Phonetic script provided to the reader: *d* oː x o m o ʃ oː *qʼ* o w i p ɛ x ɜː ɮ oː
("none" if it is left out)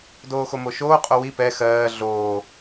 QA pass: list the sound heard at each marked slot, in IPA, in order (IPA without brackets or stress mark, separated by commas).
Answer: d, qʼ